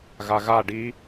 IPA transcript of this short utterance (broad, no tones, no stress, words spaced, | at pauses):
ɣaɣa ɖi